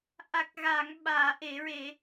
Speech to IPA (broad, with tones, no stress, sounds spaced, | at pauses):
ʔ a˨˩ k̚ ɣ a˨˩˨ ŋ ɓ aː˨˩˨ ʔ e˨˩˨ ɹ e˨˩˨